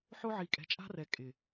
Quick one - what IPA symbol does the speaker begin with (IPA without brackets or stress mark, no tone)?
ħ